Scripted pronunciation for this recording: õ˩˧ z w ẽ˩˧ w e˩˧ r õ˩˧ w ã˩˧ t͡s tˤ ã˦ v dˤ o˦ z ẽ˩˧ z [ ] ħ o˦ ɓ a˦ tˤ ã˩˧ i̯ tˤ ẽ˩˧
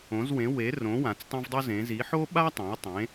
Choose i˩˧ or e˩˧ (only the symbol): i˩˧